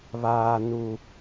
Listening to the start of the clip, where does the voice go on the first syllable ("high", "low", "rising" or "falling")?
low